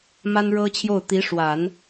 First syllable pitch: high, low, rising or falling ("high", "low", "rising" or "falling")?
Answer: high